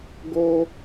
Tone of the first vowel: high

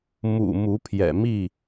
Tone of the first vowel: low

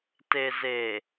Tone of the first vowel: low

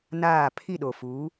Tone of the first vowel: falling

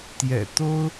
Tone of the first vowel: low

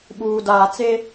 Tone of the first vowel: low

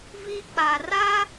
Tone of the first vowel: high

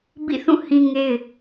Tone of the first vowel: falling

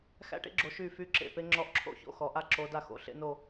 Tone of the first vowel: falling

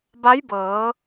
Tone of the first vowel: rising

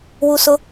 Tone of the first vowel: high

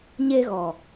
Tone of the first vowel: high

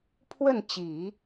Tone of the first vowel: falling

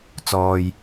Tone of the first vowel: low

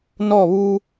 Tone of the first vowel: falling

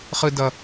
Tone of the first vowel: high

